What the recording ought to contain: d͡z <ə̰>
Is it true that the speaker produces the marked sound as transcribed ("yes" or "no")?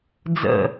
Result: yes